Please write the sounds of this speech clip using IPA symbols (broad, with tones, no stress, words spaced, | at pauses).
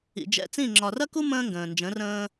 ḭ˨d͡ʒɛ̰˧t͡sĩ˦˨ ŋ͡ǁɒ˨rɐ˦ku˦ mə̃ː˦ŋɡə̃ː˨nd͡ʒə̃˨˦rə̃ː˦